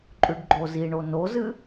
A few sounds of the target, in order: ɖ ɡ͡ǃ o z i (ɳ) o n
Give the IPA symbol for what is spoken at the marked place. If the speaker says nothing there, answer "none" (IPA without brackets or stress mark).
ɳ